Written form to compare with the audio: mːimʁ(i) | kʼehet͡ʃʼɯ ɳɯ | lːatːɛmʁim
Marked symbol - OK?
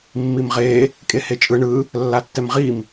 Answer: no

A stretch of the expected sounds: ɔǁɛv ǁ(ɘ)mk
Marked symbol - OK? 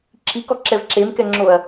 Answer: no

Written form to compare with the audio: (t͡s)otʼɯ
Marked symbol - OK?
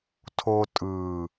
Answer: no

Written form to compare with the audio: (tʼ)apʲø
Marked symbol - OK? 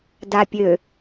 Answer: no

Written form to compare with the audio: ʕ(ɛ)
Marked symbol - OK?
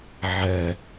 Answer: yes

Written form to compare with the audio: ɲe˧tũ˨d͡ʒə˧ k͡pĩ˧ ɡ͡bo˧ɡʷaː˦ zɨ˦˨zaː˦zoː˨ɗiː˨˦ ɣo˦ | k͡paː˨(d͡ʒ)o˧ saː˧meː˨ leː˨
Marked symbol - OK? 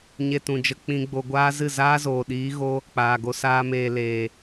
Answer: no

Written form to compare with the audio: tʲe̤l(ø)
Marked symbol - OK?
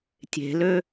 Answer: yes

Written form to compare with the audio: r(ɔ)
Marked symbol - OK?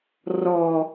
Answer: yes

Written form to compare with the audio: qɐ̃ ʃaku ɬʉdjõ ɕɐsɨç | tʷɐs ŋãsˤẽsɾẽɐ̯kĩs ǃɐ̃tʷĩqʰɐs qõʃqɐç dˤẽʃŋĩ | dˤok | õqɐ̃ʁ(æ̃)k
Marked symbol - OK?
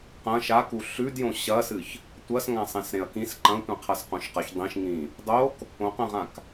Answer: no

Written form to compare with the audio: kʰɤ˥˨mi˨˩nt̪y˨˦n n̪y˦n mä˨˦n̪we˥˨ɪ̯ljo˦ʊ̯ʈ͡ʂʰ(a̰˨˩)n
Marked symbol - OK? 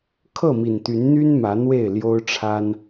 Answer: no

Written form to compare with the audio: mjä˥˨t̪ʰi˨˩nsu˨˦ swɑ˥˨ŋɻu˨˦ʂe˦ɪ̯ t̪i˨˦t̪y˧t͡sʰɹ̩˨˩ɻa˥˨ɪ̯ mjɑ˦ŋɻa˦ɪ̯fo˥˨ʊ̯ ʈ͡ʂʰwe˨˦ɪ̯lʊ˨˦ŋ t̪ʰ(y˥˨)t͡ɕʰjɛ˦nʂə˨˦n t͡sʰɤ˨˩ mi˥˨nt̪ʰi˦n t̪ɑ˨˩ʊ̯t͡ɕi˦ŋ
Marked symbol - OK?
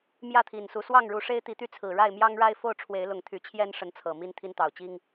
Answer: no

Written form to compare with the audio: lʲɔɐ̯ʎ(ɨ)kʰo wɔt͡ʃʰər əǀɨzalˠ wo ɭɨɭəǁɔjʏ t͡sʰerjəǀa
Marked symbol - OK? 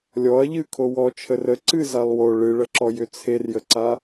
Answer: yes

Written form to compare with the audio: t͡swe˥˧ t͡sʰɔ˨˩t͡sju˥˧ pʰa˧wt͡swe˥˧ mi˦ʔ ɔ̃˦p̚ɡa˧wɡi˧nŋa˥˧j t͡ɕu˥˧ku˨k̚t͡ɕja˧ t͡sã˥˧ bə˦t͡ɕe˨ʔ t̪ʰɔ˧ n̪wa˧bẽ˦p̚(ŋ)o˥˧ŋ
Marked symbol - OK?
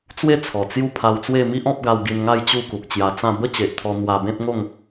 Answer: yes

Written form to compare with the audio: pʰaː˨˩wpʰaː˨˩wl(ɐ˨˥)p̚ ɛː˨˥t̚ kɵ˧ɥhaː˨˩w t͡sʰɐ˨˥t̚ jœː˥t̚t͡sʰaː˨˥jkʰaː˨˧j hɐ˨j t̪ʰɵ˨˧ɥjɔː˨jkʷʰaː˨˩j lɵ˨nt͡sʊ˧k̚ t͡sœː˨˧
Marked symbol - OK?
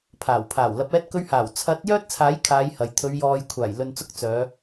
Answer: yes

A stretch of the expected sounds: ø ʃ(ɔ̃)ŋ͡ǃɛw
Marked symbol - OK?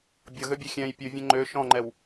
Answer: yes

